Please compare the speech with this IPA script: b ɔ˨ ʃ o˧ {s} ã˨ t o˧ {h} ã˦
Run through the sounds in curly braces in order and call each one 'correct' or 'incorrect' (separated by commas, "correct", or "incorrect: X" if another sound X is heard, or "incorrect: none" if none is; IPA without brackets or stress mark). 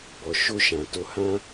incorrect: ʃ, correct